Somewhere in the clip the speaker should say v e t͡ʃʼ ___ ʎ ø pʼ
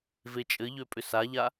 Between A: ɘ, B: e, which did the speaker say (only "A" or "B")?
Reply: A